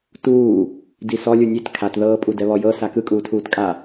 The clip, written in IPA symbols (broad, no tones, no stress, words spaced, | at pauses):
tuː | disɔ lʲunʲet kʰatðɤː pʼudɛβɔjɤ sakɯkʼuːtʰuːt kʼa